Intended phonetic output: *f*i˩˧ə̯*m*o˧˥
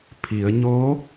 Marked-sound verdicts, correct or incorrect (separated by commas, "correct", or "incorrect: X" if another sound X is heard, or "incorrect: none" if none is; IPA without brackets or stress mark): incorrect: pʰ, incorrect: ɲ